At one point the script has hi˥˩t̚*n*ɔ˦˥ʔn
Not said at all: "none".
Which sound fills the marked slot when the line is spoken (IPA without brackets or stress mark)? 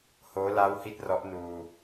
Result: r